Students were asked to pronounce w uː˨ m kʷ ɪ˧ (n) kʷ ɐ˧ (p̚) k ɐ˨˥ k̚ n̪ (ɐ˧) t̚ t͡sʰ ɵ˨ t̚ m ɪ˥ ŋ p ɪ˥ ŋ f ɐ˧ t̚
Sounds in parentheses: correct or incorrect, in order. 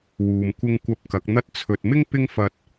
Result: incorrect, correct, correct

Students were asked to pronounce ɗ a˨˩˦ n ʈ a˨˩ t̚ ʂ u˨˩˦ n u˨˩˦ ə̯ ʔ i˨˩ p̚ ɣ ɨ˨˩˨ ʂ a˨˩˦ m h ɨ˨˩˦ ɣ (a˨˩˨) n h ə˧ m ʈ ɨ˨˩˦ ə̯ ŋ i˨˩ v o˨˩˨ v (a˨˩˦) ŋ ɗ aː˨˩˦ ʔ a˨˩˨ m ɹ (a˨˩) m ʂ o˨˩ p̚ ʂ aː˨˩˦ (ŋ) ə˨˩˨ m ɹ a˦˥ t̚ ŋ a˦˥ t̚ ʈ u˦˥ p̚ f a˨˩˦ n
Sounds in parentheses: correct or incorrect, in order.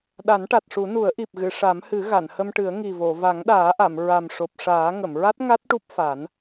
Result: correct, correct, correct, correct

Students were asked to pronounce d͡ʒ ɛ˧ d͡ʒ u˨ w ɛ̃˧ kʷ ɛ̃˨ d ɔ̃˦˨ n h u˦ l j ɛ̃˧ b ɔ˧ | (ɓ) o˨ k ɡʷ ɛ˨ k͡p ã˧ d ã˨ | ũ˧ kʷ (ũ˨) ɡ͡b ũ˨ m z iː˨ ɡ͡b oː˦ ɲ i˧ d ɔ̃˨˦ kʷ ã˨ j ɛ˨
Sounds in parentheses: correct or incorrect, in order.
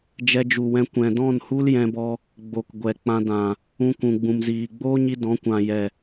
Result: incorrect, correct

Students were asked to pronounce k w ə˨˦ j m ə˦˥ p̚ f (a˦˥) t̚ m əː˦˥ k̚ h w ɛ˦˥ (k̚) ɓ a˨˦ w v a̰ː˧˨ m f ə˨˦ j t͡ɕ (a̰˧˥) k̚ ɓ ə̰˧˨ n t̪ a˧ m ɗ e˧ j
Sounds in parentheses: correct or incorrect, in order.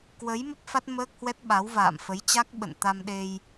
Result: correct, incorrect, incorrect

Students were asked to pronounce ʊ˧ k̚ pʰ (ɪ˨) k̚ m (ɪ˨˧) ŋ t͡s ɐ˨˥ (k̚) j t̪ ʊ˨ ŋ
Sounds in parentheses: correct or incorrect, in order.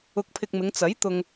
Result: incorrect, correct, incorrect

